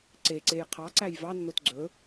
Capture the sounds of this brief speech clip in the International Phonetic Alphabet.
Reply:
ǀ e ǀ e j qʰ ɑ ǀ æ j v ɑ nː o t ɡ͡ǀ ɵ

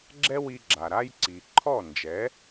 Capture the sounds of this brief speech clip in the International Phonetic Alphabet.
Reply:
ɡ͡ǁ ɛ˥ w i˧ ɡ͡ǁ a˩ ɾ a˥ j ǀ i˩ ǃʰ ɔ˥˩ n d͡ʒ ɛ˩˥

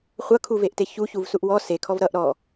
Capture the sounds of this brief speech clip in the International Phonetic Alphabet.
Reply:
χʷ ʌ kʰ u v e ʔ t e ç u ç u v s u ʔ w ɔ s e kʰ ɔ v ɾ ʌ ʔ ɾ ɔ

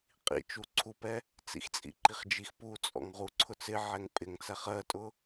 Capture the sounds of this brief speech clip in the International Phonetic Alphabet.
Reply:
qʼ ḭ t͡ʃ u ǀʰ u p ɛ | t͡s ḭ x t͡sʼ ḭ ǃ i χ d͡ʒ i x p u t͡sʼ ɔ̰ ŋ ʁ u ǀʰ ʊ t͡s ɪ ʕ ɛ ŋ pʼ ɪ ŋ t͡s æ χ ɜ tʼ ʊ

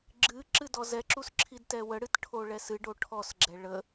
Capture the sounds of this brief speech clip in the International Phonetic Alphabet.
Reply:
ɡ͡ǁ ɨ ǁ ɨ d ɔ z ɛ ǁ u s ǁʰ i d t ɛ w ə ɽ ɨ t ʈʰ o ɭ ɛ s ɨ ɖ o ʈʰ ɔ s ɡ͡ǁ ɛ ɭ ə

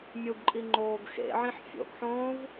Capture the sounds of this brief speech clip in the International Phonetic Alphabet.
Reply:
mʲ u ɡ ǃʼ i ŋ͡ǃ oː ɡ x ḛ ʕ ĩ ħ fʲ o̰ ɡ ħ õː v

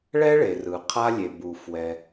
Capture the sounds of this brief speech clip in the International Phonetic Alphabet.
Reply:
ɭ ɛ˥ ɭ e˩ r ɯ˩ qʰ a˧ lʲ e˩ b u˩ f w ɛ˩

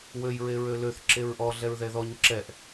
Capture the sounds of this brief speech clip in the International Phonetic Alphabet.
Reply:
w ø j ɹ e ɹ ø l ø θ ǁ e ɹ ʔ ɔ ɮ ɛ ɹ ð ɛ ð ɔ ɲ ǁ ɛ ʔ

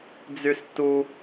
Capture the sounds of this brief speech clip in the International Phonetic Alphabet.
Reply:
d͡z y s t u

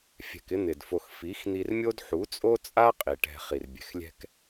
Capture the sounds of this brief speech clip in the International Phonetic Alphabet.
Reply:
fʲ ɛ̤˨ k ɪ˧ n̪ ɪ˨ d f o˧ x f i˨˦ x n̪ i˧ r mʲ o˦ d ħ u˨˦ t͡sʼ o˦ t͡sʼ a˦ qʼ i˨ ʈ ɛ̤˧ χ i˨ r bʲ ɛ̤˨ x lʲ ɛ̤˧ k

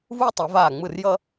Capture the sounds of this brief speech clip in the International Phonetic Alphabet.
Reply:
v u˥ j tˤ ɯ˨˩˦ v aː˥˩ ŋ͡m ɯ˥˩ r j ʌ˥

